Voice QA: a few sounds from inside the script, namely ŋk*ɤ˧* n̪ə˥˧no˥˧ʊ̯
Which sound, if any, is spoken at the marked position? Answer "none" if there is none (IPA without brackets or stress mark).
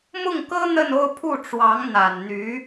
ɤ˥